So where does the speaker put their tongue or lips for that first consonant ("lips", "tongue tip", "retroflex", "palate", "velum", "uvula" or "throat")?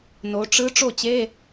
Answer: tongue tip